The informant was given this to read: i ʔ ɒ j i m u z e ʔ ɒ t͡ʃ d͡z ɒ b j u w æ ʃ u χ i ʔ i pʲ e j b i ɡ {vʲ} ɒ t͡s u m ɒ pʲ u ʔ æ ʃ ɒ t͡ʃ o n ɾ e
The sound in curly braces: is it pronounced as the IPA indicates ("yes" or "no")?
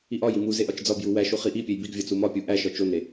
yes